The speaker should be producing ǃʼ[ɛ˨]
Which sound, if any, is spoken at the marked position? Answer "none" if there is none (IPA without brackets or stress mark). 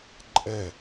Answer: ɛ˦˨